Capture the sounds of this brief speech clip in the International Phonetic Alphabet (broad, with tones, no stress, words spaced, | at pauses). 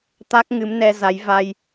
t̪a˦˥k̚ŋɨ˨˦mnɛ˧za˨˦j va˧j